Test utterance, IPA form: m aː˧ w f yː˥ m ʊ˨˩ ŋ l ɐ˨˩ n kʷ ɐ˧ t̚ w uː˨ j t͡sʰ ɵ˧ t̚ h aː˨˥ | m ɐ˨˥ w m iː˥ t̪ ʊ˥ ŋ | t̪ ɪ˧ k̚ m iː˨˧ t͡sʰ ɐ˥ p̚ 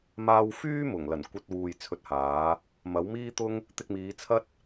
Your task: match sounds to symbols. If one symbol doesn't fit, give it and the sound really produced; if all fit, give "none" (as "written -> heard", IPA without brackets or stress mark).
p̚ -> t̚